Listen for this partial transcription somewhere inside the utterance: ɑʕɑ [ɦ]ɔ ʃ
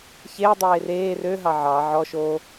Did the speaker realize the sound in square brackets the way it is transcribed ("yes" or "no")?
no